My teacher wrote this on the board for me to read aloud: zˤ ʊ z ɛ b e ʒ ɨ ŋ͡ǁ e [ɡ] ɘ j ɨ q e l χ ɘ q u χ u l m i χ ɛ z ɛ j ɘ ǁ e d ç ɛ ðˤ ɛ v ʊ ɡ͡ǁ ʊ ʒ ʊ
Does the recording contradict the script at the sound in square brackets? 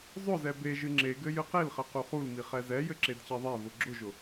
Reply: no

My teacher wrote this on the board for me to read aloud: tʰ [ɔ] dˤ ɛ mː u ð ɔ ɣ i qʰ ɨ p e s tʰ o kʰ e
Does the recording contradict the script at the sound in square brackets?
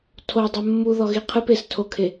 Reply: yes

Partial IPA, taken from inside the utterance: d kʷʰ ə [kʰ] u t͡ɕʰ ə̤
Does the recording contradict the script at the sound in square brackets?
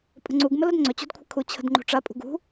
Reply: no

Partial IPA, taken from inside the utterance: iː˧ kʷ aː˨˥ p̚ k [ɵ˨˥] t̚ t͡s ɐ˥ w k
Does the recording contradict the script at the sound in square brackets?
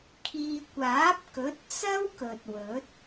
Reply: no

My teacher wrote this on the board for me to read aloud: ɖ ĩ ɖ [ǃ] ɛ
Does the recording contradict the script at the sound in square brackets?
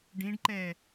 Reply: no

